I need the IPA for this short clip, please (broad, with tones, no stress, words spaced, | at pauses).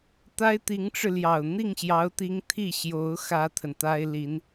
t̪a˥ɪ̯t̪i˧˥ŋʈ͡ʂɻ̩˧ljɑ˨˩ʊ̯ n̪i˥˩ŋɕjɑ˧˥ʊ̯t̪i˧˥ŋ t̪ʰi˥˩ɕjo˧˥ʊ̯ xä˥t̪ʰə˨nt̪a˥ɪ̯li˧˥n